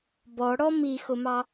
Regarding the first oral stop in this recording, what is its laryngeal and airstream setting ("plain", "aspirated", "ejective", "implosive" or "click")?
plain